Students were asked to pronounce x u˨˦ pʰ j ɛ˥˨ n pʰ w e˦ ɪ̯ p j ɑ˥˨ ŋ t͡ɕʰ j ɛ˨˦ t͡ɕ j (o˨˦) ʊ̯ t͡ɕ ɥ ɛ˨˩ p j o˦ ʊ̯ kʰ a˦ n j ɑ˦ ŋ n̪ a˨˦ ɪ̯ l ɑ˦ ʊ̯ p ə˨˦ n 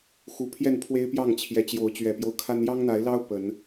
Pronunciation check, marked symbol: correct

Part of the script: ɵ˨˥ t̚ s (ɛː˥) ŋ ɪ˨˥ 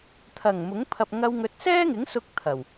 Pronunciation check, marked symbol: correct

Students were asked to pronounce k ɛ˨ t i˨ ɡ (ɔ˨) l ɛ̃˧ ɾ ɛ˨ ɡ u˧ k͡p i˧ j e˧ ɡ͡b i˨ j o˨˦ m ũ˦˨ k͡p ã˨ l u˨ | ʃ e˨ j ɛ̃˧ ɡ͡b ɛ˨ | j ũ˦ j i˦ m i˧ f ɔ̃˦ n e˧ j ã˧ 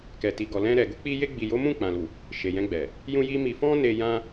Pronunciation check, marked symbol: correct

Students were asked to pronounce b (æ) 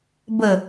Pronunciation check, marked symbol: incorrect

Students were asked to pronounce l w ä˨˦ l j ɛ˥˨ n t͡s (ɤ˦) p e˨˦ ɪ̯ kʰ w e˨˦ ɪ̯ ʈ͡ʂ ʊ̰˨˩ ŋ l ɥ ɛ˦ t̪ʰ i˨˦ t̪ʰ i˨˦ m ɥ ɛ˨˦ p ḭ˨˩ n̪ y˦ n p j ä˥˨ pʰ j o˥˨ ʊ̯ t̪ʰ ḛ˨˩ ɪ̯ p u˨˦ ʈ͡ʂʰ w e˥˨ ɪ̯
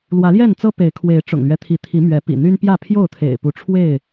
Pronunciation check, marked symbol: correct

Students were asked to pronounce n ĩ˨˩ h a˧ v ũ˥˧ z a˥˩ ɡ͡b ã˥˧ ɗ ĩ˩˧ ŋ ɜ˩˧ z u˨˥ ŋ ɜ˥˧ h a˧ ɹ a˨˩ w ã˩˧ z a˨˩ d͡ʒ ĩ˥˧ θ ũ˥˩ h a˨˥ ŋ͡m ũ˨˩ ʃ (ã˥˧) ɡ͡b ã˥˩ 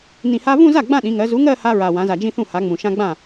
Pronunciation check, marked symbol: incorrect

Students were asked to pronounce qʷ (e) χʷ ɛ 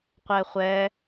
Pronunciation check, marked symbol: incorrect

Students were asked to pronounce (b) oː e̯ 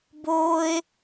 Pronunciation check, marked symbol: correct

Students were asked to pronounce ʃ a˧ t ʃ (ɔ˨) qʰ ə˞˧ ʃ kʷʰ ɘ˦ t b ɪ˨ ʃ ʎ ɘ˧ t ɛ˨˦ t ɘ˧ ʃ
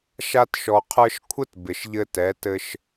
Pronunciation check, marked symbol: correct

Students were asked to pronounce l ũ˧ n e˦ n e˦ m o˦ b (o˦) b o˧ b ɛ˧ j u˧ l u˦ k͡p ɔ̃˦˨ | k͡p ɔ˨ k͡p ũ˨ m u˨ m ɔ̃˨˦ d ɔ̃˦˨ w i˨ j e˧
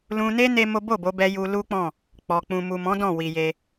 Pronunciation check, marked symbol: incorrect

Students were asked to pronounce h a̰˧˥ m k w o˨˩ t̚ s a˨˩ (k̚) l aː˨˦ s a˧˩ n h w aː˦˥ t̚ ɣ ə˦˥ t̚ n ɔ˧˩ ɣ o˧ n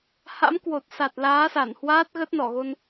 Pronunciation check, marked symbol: incorrect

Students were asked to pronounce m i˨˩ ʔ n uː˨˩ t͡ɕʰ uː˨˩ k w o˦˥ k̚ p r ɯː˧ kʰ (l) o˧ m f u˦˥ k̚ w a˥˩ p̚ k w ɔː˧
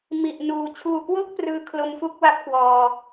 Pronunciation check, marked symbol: correct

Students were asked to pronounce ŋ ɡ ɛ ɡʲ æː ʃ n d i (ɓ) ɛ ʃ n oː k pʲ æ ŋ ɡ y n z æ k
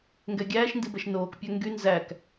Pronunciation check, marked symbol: incorrect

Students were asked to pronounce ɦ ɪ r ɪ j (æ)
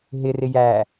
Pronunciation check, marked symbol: correct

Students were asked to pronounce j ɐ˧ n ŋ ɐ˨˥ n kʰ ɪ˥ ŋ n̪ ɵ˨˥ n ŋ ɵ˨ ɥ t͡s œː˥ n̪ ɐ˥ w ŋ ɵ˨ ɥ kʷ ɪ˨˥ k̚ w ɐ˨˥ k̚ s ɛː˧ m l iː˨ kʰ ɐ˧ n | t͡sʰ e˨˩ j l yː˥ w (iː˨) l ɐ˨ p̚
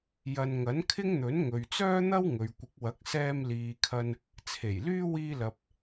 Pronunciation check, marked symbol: incorrect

